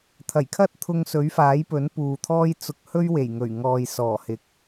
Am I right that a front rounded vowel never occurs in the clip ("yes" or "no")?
yes